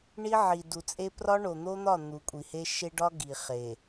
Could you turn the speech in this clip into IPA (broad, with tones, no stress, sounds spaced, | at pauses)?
ɳ i˦ ʕ i˨ d u˨ t͡sʼ e˦ p r ɒ˦ ɳ o˨ n̪ o˦ n̪ ɒ˦˨ n̪ u˨ kʷʼ i˨ h e˦ ʃ e˦ ɖ ɒ˦ ɡ i˨ χ e˨